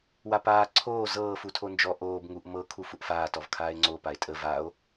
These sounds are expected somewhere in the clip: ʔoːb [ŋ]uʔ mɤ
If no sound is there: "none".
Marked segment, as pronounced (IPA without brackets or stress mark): ŋ